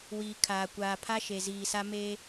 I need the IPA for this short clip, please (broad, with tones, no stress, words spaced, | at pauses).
wiː˨kʰaː˨kʷaː˨ pʰa˦ʃe˨ziː˨sa˦ meː˦